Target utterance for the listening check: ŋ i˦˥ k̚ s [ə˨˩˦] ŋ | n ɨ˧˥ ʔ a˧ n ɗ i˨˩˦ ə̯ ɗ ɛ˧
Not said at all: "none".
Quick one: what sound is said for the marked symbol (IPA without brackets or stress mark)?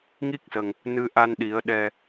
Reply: ə˨˩